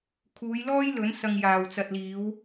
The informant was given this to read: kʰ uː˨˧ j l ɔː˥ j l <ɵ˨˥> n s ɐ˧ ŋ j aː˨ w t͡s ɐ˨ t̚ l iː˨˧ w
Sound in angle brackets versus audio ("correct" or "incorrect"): correct